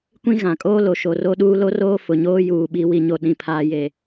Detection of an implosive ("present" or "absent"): present